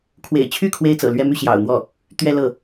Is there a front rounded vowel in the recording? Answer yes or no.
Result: yes